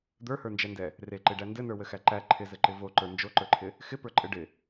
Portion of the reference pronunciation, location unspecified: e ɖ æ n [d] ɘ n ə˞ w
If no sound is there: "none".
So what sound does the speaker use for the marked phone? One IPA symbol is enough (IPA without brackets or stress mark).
d